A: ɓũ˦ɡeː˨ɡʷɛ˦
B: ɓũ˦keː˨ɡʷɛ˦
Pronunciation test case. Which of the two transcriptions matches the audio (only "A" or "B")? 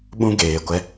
A